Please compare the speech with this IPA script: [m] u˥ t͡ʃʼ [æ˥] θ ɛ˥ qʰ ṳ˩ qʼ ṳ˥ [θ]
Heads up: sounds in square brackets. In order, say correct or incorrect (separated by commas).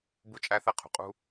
incorrect, correct, incorrect